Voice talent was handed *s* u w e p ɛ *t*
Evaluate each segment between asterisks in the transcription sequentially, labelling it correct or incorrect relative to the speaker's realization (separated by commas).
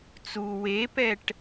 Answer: incorrect, incorrect